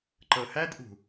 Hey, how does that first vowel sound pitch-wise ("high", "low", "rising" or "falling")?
low